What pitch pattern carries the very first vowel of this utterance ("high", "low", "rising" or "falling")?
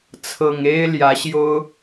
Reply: low